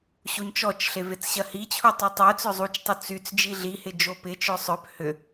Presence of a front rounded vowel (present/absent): present